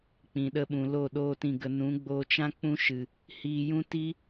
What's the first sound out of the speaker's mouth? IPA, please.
k͡p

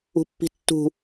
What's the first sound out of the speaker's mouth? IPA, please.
ṳ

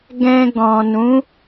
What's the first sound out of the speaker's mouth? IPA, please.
ɡ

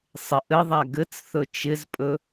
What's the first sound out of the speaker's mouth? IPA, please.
sˤ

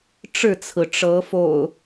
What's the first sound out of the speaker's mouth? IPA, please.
ʈ͡ʂ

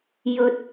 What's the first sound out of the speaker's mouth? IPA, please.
j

